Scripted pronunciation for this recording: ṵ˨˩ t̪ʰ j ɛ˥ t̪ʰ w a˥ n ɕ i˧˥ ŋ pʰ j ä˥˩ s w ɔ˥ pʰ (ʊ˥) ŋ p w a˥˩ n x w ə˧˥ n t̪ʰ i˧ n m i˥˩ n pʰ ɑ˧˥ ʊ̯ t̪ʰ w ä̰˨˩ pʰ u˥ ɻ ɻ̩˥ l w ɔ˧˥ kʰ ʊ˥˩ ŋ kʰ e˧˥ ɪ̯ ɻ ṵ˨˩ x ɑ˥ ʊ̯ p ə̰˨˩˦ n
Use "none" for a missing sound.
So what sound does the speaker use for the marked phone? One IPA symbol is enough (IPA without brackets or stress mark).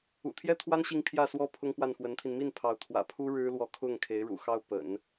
ʊ˥